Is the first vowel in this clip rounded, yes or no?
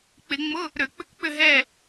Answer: no